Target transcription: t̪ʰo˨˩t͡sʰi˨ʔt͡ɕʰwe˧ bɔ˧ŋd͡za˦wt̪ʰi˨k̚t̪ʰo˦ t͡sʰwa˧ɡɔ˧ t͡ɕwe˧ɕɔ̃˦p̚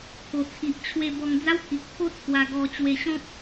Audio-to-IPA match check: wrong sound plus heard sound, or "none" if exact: none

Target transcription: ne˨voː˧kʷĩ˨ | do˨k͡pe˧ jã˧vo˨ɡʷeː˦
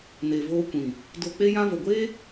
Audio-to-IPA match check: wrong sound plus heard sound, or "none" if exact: none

